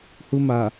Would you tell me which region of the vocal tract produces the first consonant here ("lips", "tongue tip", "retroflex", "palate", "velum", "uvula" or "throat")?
throat